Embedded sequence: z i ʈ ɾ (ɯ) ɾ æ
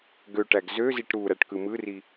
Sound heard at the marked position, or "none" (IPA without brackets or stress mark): u